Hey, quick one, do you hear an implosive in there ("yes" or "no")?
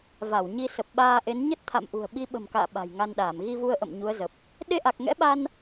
yes